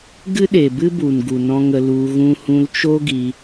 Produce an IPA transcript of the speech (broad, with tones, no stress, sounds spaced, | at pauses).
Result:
ɡ ɨ˦ ɗ e˨ b ɨ˦ b u˨ n ɡ u˨ n ɔ̃˧ ŋ ə˧ l u˧ ɣ ũ˧ h ũ˧ l t͡ʃ o˦ ɡ i˧